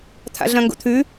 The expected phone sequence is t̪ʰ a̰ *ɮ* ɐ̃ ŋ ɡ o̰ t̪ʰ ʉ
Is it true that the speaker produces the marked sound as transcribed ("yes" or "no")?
yes